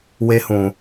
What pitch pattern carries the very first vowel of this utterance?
high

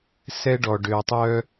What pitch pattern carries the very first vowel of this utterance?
high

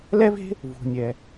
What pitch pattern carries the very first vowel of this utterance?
high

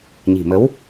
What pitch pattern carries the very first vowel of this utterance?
low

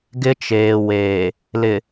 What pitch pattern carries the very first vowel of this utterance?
high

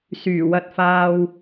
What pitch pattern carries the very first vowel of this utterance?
low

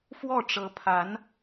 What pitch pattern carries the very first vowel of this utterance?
falling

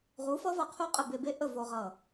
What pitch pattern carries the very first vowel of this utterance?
rising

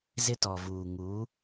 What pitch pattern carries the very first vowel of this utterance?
high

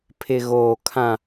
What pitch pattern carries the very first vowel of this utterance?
low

